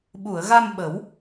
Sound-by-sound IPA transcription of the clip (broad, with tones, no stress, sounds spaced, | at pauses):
ɓ u˨˩˨ ə̯ ɣ a˧ m ɓ ə˨˩˦ w